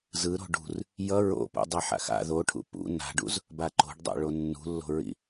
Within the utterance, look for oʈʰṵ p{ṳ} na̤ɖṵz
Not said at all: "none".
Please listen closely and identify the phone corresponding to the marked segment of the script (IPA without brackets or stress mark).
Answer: ṵ